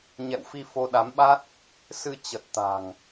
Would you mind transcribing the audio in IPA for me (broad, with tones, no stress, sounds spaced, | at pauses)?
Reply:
ɲ ɛ̰˧˨ w f i˧ f o˧ ɗ a˨˦ m ɓ a˦˥ t̚ | s ɨ˧ t͡ɕ ə˨˩ t̚ t̪ a̤˨˩ ŋ